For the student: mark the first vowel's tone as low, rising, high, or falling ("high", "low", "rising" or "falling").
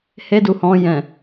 high